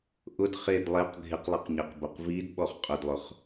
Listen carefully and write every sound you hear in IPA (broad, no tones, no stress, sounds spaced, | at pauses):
ʔ ʊ d χ e d lˠ e q ɡʱ ɪ q lˠ i q ɲ ɛ q b o q v i d ɓ ɔ χ qʼ ʊ d lˠ ʊ χ